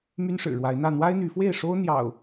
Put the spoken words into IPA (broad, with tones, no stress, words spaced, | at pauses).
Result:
my˦nʂɻ̩˨˩ɻwa˨˦ɪ̯n̪ä˥˨ n̪wa˦ɪ̯n̪y˨˦fwe˥˨ɪ̯ʂo˦ʊ̯ n̪jɑ̰˨˩ʊ̯